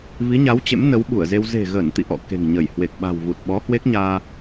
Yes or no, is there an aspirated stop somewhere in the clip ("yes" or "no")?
no